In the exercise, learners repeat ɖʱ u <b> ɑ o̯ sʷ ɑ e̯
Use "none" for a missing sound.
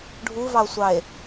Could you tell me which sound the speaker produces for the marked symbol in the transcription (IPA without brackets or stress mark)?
v